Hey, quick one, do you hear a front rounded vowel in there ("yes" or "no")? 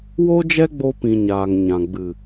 no